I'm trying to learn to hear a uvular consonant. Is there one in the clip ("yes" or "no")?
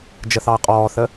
yes